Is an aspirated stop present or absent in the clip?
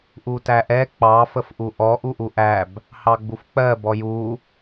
absent